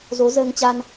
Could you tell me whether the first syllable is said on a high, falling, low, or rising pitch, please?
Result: rising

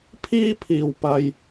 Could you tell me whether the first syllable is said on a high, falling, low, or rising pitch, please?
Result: high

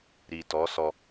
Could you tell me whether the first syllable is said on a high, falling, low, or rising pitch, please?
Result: low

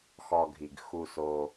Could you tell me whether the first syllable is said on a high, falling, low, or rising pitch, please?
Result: low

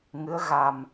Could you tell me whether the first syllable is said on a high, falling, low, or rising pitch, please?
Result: rising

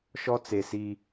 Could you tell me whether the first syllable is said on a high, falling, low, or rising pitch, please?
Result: high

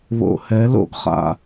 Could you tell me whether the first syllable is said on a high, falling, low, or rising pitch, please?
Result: low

